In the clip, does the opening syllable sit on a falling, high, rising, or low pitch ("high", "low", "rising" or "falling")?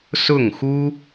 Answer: falling